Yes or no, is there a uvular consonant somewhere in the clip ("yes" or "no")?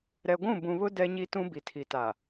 no